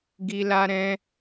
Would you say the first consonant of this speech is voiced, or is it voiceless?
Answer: voiced